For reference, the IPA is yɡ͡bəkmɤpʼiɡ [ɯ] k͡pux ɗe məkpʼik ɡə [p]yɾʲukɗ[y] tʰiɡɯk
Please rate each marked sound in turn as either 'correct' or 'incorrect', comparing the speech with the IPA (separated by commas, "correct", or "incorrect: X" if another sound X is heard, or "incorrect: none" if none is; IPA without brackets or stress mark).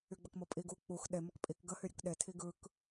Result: incorrect: u, incorrect: h, incorrect: e